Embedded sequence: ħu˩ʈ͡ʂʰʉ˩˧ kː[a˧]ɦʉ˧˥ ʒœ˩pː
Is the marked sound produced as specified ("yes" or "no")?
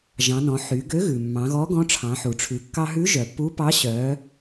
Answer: no